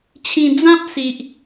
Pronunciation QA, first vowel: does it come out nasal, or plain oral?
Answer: nasal